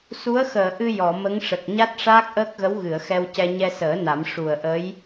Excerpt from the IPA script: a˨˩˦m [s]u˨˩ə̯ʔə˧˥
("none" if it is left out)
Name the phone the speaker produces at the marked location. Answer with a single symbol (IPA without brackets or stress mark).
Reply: ʂ